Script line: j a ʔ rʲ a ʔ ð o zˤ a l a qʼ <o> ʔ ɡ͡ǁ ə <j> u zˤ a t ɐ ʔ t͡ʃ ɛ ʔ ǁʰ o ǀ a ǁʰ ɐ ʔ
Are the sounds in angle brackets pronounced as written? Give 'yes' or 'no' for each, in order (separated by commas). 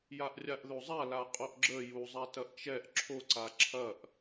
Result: yes, yes